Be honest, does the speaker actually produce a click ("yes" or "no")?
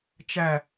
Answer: no